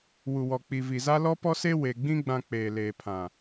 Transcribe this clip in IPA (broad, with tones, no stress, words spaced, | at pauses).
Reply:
wu˨wɔ˨ k͡pi˨vi˨za˦ lɔ˦pɔ˦se˦ we˨ɡ͡bĩ˦ ɡ͡bã˨ k͡peː˨leː˨pʰã˨